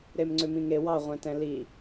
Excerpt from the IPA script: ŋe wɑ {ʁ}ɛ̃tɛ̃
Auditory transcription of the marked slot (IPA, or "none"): ʁʷ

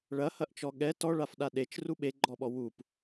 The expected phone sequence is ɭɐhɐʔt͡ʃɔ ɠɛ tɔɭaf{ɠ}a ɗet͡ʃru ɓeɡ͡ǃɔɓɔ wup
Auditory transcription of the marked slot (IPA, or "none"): ɗ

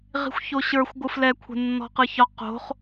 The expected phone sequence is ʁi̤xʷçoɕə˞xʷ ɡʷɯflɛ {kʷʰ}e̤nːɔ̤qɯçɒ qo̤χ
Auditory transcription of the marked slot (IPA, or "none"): kʷʰ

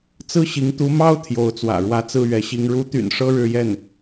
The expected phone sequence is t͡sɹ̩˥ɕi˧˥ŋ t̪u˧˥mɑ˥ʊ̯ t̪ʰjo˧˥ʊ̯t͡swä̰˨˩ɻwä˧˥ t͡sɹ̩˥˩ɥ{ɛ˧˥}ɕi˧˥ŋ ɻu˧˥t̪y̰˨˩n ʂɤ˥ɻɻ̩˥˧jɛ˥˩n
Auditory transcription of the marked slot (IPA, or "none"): ɛ˧˥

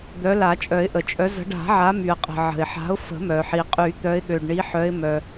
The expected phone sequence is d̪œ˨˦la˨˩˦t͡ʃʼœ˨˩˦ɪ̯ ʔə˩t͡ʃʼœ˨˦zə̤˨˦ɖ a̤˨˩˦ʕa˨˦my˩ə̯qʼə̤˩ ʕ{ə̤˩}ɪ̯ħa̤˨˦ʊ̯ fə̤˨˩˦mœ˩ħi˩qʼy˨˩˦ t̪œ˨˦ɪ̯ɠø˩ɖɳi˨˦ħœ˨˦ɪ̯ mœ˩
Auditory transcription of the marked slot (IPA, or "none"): ə̤˩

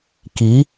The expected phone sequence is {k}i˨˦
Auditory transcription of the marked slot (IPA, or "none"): k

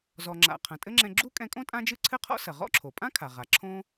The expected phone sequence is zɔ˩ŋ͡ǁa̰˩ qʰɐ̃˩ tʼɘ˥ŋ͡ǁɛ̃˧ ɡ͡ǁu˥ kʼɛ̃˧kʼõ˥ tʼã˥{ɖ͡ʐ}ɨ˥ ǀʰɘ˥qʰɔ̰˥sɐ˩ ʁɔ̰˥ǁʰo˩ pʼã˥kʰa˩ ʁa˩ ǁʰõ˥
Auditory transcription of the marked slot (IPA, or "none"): d͡ʒ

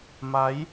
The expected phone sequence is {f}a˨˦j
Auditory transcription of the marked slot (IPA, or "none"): m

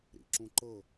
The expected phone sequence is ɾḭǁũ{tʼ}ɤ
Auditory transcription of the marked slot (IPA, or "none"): ǃ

